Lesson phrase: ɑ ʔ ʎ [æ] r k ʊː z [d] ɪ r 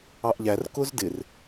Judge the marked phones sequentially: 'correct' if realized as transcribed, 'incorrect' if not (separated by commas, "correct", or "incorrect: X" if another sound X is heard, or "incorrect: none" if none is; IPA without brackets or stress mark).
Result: correct, correct